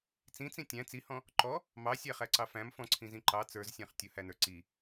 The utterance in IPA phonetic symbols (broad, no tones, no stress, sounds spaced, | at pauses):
t͡s ĩ t͡s ĩ tʲ æ̃ t͡s i h ɔ̃ | ǃ ɔ | m ɑ sʲ æ χ æ ǀ ɑ f æ̃ m f ɔ̃ ǀʰ ĩ z ĩ ǃ ɑ t͡s ə˞ z sʲ æ̃ χ tʲ ʊ h æ n ə˞ ǀ i